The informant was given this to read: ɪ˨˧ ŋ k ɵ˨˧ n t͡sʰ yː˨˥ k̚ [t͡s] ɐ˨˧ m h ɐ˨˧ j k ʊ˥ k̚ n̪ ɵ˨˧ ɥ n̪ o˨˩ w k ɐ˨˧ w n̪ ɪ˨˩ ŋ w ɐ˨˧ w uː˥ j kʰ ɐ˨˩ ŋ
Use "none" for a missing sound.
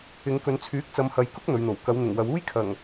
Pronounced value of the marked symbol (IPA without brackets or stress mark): t͡s